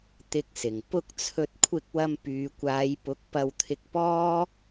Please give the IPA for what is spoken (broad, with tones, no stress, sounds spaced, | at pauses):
t̪ ɪ˧ k̚ s ɪ˨˩ ŋ p ʊ˧ k̚ t͡sʰ ɵ˧ t̚ kʷʰ ɪ˧ k̚ w ɐ˧ m p yː˨ kʷ aː˨˧ j p ʊ˨˥ k̚ p ɐ˧ w t̪ʰ ɪ˧ k̚ p ɔː˥